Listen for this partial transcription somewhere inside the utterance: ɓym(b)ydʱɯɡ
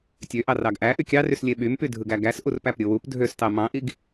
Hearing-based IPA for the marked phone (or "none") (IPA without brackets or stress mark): p